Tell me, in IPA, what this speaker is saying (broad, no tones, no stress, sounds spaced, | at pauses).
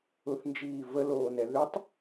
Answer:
ʊ θ n d͡ʒ iː v ə l oː n ɛ ð ʏ tˤ